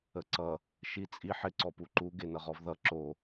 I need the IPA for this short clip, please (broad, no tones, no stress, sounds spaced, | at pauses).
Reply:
ə ǀ ʌ | ʃ i t͡sʼ i ħ ɪ ǀ ɔ p u ǃ u ɡ e n ʌ ʁ ɔ v ð ʌ ǁ o